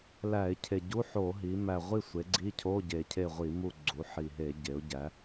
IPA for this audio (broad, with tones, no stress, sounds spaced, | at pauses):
l æ˧˩˧ ɪ̯ cʰ e˨˩ ɟ u˧˥˧ ħ o˧˩˧ ɦ i˩˧ m æ˨˩ ʁʷ i˦˨ sʷ e˩˧ ɡ͡ǀ i˧˥˧ cʰ o˧˥˧ ɟ e˨˩ cʰ e˦˨ ʁʷ i˧˩˧ m u˦˨ ɡ͡ǀ u˩˧ ħ i˨˩ ɦ e˧˩˧ ɟ e˩˧ ʊ̯ ɟ æ˩˧